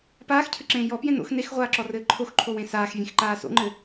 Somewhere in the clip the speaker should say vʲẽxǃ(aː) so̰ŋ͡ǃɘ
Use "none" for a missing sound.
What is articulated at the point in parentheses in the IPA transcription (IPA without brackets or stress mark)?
aː